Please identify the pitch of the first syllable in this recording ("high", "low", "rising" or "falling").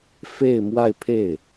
falling